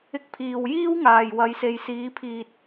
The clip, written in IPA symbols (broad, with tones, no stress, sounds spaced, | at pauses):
ɪ˨ k̚ pʰ iː˨˩ w j iː˥ w ŋ aː˨˩ j w ɐ˨˧ j s e˨ j s iː˨˥ pʰ iː˨ t̚